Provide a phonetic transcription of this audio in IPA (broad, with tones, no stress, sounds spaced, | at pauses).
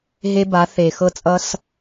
ɦ e˦ b a˨˦ θ e˨ x ɤ˦ t͡sʼ ʌ˦ s